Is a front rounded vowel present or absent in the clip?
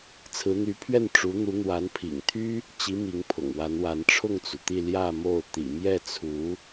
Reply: present